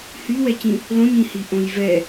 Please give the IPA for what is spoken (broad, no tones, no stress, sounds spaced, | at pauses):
h y w ɛ c ĩ | l õ ɲ ĩ h i ʔ õ j v ɛ